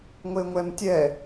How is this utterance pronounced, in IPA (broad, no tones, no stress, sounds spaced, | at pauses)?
ŋʷ e ŋʷ ɛ m tʲ ɛ